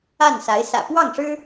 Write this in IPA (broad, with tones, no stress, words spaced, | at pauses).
a˥˩nsa˧˥ɪ̯ sä̰˨˩ pwɑ˥˩ŋʂɻ̩˥